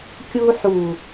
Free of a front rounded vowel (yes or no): yes